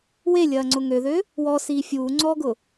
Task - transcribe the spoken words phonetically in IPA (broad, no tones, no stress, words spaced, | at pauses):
welʲɐːŋ͡ǀʊ ŋøðø | wɔsiː fʲuːŋ͡ǀɔːɡʊ